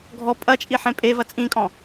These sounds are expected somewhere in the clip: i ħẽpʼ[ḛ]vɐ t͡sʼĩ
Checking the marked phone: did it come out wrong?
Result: yes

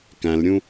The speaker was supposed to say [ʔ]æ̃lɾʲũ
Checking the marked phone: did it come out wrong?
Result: yes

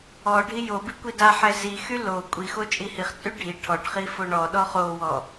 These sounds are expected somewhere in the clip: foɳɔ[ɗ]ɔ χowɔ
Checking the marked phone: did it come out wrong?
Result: no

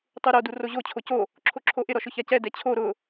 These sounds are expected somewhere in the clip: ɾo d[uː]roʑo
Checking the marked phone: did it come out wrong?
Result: yes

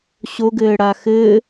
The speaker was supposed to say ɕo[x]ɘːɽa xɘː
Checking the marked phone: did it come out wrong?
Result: yes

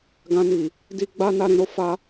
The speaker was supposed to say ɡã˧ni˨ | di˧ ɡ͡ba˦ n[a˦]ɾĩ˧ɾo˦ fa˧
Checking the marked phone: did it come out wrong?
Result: no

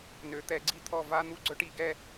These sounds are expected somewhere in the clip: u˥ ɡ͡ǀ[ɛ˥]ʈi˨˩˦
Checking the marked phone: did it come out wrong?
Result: yes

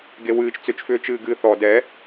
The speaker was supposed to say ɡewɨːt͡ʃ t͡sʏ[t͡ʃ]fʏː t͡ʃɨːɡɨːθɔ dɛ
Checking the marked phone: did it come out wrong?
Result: no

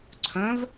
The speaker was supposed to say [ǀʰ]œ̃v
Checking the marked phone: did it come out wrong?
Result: no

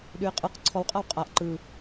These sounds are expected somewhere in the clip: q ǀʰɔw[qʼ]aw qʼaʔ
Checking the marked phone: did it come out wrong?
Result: no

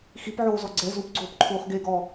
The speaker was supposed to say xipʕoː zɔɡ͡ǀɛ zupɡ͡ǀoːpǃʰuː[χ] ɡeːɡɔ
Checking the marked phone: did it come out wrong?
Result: no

